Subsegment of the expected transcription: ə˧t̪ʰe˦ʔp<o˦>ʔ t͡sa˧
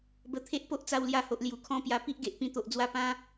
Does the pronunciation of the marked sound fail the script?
no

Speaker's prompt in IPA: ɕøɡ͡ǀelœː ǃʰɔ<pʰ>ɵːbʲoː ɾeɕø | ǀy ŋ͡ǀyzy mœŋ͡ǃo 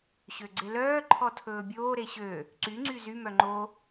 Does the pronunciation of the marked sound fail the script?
yes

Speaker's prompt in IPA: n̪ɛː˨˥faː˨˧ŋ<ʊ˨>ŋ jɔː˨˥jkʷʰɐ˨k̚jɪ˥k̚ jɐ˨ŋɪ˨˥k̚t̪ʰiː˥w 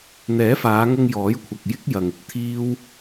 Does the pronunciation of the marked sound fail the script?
yes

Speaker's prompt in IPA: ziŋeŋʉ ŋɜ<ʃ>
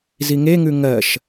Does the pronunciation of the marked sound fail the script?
no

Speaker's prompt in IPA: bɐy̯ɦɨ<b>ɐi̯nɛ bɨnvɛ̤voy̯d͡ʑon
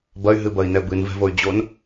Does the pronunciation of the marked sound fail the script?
no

